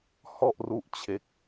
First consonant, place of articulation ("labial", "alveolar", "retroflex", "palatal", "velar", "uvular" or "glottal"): glottal